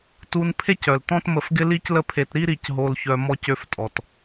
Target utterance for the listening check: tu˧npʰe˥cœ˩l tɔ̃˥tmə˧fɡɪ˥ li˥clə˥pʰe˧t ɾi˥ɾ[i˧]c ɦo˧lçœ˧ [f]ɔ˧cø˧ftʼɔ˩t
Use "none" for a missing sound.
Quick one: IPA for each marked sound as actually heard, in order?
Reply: i˧, m

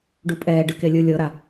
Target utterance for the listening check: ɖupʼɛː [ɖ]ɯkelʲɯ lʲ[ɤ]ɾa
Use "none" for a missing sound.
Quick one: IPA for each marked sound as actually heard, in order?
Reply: ɖ, ɤ

